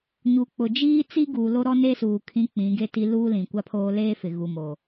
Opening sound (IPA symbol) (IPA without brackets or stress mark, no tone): ɲ